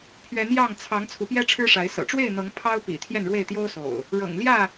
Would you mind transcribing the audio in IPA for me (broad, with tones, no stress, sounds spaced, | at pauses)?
pʰ ɥ ɛ˨˦ n j ɑ˥˨ ŋ t͡sʰ ɑ˨˦ ŋ t͡sʰ u˨˦ p j ɛ˦ ʈ͡ʂʰ ɻ̩˦ ʂ a˨˦ ɪ̯ s ɤ̰˨˩ ʈ͡ʂ w e˥˨ ɪ̯ n̪ ɤ˨˦ ŋ pʰ ɑ˦ ʊ̯ p ḭ˨˩ t̪ʰ j ɛ˥˨ n ɻ w e˥˨ ɪ̯ t̪ j o˦ ʊ̯ s o̰˨˩ ʊ̯ | ɻ ɤ̰˨˩ ŋ l j ä˥˨